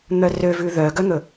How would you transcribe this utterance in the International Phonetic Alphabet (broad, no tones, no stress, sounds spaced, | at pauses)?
n̪ œ r ø v ʉ ð œ ɡ œ n̪ ɵ